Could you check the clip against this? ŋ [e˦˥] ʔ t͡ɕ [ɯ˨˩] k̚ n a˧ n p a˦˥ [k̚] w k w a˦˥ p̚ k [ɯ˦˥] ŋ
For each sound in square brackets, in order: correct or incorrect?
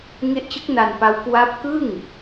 correct, incorrect: ɯ˦˥, incorrect: none, incorrect: ɯ˥˩

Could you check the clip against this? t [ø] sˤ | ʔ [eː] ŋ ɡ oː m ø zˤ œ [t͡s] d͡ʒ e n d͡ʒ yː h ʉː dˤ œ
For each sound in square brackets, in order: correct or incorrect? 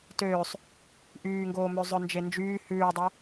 incorrect: øː, incorrect: yː, incorrect: n

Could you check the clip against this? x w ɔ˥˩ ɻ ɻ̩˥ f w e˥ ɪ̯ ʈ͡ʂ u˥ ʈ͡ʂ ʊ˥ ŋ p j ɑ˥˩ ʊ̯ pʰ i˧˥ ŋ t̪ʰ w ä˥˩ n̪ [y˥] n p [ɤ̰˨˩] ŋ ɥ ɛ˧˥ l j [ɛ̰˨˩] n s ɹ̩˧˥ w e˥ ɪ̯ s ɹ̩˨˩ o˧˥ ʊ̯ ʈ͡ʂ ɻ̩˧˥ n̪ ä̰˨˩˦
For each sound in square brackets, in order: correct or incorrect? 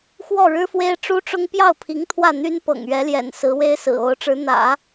correct, correct, correct

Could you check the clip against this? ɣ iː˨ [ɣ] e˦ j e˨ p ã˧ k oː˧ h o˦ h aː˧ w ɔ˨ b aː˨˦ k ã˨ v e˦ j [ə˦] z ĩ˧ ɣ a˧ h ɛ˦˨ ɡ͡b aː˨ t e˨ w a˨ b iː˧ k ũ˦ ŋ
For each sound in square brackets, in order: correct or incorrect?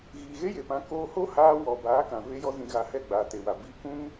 correct, incorrect: ɔ˦

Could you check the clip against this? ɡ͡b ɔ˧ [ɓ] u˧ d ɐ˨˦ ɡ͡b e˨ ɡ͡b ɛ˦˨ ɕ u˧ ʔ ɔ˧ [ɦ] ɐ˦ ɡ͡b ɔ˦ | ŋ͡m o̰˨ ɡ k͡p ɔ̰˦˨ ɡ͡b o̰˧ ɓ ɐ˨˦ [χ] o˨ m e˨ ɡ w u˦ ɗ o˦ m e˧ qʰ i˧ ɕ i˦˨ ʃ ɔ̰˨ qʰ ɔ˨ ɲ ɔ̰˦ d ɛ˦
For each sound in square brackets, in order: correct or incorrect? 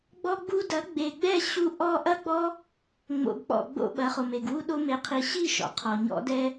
incorrect: ɡ͡b, incorrect: ʔ, correct

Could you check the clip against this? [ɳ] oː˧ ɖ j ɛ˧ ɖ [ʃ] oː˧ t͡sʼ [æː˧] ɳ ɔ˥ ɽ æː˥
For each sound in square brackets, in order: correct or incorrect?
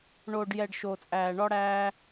correct, correct, correct

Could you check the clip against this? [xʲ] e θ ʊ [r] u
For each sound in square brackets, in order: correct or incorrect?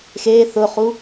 incorrect: x, incorrect: χ

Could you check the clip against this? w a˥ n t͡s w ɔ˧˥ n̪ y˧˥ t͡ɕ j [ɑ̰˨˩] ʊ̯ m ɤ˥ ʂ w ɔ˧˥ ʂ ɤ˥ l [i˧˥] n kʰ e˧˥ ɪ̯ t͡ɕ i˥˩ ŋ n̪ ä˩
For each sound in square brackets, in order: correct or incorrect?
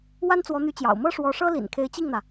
correct, incorrect: ḭ˨˩

